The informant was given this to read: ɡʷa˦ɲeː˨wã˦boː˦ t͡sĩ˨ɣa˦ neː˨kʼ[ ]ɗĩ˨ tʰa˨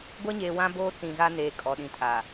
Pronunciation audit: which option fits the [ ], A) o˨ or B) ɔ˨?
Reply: B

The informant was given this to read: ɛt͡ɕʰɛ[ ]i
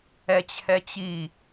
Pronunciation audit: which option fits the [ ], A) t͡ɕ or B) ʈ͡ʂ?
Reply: A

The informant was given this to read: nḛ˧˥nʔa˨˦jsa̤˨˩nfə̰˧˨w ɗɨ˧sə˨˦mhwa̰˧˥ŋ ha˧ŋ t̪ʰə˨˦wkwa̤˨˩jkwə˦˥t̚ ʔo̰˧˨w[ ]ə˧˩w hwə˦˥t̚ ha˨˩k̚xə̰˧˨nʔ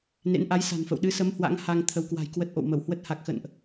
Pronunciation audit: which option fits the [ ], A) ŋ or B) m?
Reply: B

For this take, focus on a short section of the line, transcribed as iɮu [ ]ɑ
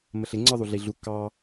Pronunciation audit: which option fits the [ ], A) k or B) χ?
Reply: A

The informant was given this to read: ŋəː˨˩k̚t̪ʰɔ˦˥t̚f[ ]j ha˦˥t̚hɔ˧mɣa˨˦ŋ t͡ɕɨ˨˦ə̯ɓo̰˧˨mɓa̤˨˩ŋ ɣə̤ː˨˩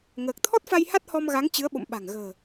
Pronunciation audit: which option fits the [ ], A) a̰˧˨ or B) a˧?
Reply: B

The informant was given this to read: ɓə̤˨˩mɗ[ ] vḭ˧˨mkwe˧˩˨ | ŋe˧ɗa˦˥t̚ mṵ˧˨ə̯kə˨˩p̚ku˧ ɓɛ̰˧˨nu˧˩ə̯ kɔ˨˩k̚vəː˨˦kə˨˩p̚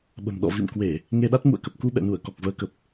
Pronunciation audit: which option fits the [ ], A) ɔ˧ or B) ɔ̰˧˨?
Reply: B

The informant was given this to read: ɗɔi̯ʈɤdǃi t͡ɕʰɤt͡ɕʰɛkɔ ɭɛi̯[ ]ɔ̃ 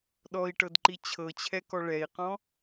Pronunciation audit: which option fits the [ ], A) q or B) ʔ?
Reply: A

